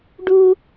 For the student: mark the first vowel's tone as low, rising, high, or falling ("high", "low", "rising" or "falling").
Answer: high